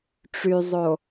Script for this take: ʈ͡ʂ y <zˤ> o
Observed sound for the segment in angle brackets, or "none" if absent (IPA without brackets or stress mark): zˤ